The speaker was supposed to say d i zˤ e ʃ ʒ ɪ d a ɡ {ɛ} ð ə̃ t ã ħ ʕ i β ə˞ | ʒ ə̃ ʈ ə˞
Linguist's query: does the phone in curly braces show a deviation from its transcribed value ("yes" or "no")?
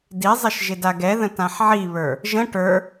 no